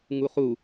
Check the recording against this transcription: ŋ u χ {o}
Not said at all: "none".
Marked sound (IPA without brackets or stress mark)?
u